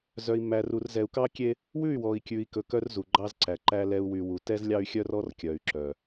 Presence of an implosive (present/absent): absent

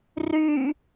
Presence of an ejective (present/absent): absent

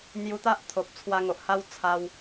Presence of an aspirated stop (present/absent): present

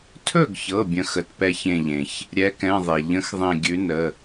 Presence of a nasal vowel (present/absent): present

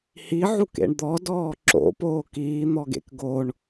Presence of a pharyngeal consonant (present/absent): present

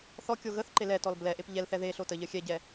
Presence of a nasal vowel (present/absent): absent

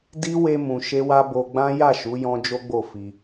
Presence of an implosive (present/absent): absent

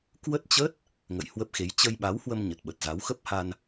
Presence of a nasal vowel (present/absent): absent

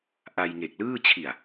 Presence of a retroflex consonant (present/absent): absent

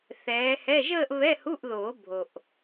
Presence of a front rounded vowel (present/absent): absent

